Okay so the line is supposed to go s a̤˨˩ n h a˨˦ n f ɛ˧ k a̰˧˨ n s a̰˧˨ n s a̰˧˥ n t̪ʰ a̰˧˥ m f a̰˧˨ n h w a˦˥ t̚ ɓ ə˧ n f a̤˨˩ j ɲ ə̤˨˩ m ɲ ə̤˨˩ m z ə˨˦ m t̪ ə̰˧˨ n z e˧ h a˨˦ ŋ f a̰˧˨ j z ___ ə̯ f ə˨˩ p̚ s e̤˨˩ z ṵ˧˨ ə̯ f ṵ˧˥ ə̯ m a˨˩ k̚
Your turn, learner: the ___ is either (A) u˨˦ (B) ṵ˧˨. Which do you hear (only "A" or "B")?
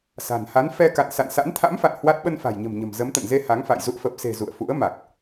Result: B